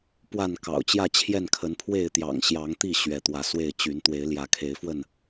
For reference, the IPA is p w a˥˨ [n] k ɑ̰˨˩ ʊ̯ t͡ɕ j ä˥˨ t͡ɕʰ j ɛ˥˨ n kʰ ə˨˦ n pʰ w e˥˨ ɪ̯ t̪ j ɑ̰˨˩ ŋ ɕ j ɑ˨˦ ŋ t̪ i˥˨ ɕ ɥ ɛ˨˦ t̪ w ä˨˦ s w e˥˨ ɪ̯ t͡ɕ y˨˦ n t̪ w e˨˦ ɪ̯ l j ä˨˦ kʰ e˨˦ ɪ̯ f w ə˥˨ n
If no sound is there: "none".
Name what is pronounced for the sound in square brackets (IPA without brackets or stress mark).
n